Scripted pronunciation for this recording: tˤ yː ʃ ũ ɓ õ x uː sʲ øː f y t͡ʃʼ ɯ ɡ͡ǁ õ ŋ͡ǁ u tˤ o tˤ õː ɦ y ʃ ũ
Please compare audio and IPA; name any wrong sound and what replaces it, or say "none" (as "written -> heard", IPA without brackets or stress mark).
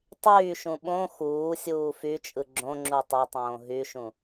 øː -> uː